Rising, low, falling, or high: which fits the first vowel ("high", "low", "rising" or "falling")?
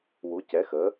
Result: rising